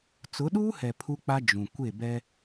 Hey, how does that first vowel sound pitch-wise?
rising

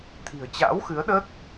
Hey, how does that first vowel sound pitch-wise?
low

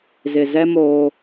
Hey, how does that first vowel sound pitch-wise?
low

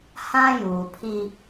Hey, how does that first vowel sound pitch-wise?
high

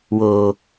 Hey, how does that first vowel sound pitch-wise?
low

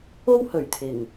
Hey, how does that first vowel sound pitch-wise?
high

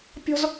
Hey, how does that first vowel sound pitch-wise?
high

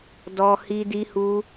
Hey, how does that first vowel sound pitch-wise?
high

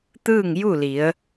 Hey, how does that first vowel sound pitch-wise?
falling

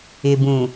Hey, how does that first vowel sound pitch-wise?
low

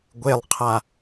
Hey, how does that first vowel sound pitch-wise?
low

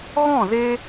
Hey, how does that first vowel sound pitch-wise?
falling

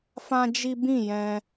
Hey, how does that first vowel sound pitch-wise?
high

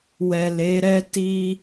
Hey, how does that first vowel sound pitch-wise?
low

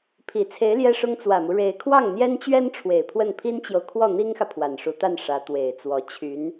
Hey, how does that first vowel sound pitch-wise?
low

